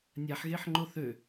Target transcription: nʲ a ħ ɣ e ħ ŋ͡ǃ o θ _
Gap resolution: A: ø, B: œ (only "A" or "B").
A